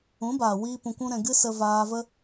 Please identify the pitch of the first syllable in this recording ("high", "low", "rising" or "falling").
rising